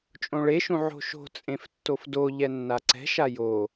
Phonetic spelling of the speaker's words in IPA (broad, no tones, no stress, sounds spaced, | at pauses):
t͡ʃʼ õ ɭ e ʃ ũ ʕ o̤ ʃ o̤ t͡sʼ ẽ f tː o f d o ʎ ɛ nː a ǀ ɛ̤ ʃ a j o